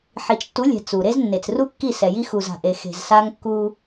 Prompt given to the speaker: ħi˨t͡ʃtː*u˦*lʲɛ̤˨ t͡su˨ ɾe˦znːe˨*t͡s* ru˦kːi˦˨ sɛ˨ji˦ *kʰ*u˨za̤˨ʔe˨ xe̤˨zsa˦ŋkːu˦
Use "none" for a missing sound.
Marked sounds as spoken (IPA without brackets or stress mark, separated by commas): u˨˦, t͡s, x